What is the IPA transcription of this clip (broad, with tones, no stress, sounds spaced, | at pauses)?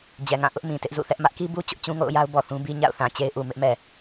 d͡ʑ ɛ˨ ŋ ã˦˨ ʔ ʊ˦ ʔ m ĩ˨ t ɪ˦ ʔ z ṵ˦˨ θ ɛ˦ ʔ m ä˦ ʔ k i˦ b u˦ t͡ɕ ʊ˦ ʔ t͡ɕ ũ˦ ŋ o̰˦˨ ʊ̯ j a˦ ʊ̯ b ɔ˨ θ ũ˦ b i˦ ɲ a̰˦˨ ʊ̯ θ ã˨ t͡ɕ e˦ ɪ̯ ʔ u˨ m ɪ˦ ʔ m ɛ˨